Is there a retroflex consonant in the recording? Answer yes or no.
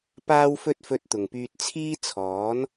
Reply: no